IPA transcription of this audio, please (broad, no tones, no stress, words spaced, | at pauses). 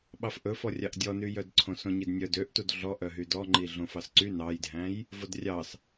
ɓɑfʔɵfɔrʲɑʔ dʲɔnyjœdǀʰõ sõɲidnʲœ døʔtud ɮɔʔœɦy dɔŋ͡ǃi ɮõfɑsǀy nɑjdʱæ̃j | vodrʲɑs